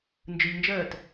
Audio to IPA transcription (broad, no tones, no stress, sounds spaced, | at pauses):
n d͡ʒ ɯ ʎ n d͡ʒ ɜː t